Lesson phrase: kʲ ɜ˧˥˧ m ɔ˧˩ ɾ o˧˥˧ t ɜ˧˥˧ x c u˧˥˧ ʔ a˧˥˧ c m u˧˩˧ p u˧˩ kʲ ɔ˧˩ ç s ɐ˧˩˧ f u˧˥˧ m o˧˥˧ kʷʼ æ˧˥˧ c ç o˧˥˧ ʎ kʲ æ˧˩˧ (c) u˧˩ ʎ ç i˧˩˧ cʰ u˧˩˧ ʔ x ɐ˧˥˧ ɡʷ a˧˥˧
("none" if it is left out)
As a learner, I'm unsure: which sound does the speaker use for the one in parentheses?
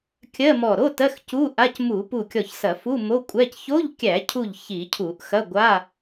cʰ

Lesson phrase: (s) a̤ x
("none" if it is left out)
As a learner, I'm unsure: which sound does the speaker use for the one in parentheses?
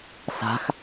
s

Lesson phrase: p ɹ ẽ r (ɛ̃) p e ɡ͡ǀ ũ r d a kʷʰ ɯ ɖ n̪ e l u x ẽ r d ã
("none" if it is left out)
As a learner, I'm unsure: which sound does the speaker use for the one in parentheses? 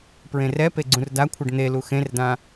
ɛ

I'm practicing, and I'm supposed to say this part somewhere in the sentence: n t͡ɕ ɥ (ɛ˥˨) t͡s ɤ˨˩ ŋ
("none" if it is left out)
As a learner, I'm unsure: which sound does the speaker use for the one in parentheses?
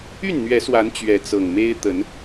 ɛ˨˦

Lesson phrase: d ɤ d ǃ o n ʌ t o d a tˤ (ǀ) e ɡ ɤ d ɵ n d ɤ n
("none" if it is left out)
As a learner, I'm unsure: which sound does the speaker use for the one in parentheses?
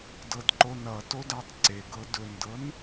ǀ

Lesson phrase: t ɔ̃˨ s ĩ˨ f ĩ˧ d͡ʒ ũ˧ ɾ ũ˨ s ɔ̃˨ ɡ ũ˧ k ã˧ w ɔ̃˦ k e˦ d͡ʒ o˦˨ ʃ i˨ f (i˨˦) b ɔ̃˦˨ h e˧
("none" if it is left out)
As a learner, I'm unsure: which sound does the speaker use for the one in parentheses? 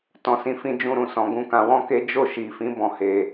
ĩ˨˦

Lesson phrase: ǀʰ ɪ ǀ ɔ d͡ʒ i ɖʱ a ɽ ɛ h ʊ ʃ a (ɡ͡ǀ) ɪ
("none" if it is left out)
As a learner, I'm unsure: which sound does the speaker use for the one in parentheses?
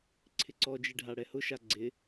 ɡ͡ǀ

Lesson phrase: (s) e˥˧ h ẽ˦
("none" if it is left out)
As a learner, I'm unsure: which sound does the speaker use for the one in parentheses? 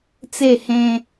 t͡s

